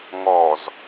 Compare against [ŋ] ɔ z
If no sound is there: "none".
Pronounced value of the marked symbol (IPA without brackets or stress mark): ŋ